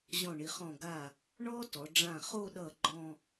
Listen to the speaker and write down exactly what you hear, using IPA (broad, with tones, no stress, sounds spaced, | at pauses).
ʑ ɔ̃˧˩ ɳ i˩˧ χ ɔ̃˧˩ ɡ a˧˩ | ɳ ɔ˥ t ɔ˩˧ ɖ͡ʐ ã˧˩ χ o˥˧ ɗ ʌ˧˩ ɡ͡ǃ ɔ̃˥˧